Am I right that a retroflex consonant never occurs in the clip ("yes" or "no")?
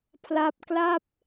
yes